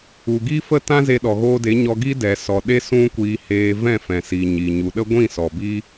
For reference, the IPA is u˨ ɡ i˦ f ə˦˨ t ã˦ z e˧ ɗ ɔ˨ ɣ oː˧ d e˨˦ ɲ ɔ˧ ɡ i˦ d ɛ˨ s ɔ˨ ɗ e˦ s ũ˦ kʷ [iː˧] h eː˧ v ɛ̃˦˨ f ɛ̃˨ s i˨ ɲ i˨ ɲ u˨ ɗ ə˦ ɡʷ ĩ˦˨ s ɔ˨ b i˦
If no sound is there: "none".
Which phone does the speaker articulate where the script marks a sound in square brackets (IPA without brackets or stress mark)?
iː˧